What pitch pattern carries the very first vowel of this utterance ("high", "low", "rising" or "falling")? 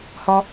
high